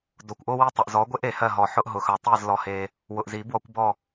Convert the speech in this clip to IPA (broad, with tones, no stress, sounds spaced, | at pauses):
d o˨ kʷ ʔ o˦ w i˦˨ tˤ ʊ˨ ʔ z ɔ˨˦ ɡʷ e˦ ʔ e˨ h ɜ˦˨ ɦ ɔ˨ ħ ʊ˦ ʔ ɦ ʊ˨ x œ˨ tˤ i˦˨ z l ɔ˦ h e˦ | w ʊ˨ ʔ z i˨˩˦ b w ɔ˨˦ kʷ b ɔ˦˨